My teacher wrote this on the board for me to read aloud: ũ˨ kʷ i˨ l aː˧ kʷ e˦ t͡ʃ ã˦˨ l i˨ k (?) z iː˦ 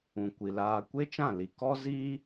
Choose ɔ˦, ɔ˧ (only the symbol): ɔ˦